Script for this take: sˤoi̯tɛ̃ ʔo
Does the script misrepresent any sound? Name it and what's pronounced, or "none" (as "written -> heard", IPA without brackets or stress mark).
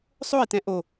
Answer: none